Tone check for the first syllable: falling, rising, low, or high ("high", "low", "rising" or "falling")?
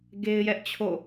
high